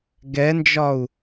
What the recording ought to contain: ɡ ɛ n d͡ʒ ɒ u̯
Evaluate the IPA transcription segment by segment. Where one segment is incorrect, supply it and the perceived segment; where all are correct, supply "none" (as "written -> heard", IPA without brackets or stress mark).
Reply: none